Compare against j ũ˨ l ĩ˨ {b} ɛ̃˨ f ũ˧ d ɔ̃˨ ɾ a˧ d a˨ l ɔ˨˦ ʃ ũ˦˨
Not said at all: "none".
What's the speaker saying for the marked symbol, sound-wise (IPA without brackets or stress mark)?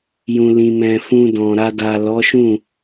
m